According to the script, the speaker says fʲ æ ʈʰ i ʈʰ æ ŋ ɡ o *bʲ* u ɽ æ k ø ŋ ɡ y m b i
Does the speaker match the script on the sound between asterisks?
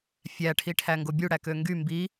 yes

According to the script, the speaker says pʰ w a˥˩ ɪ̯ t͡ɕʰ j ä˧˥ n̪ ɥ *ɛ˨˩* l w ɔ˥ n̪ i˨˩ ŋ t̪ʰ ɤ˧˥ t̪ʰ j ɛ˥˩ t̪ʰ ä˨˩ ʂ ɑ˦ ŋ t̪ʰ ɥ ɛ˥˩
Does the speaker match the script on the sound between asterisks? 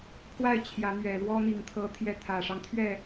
yes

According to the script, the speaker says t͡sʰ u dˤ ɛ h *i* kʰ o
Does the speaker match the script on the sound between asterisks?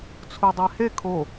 no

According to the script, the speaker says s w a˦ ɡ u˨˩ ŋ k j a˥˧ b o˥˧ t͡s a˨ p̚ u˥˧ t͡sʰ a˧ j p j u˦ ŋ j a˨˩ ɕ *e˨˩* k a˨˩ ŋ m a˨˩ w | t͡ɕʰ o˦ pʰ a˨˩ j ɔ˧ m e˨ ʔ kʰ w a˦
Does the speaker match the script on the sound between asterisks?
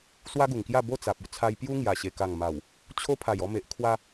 yes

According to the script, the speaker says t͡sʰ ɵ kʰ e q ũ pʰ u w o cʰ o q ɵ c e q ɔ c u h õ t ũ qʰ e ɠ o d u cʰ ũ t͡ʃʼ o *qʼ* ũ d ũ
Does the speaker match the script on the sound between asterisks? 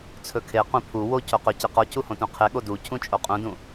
yes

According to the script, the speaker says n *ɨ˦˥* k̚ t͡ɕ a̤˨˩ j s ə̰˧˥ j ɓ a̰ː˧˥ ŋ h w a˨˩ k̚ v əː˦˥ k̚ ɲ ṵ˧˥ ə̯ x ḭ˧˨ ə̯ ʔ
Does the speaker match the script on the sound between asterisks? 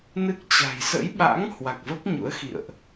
yes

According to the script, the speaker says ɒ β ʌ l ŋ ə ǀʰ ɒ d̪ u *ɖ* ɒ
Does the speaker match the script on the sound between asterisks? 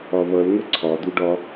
yes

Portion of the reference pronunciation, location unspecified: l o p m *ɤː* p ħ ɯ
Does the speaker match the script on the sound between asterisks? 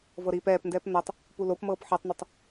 yes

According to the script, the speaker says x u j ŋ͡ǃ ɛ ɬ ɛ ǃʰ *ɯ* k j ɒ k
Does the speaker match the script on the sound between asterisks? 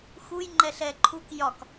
no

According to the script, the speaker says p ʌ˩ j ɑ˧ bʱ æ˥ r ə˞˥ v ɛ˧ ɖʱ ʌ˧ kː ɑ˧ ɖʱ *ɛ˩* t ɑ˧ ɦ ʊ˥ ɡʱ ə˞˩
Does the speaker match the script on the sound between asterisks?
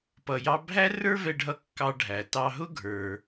no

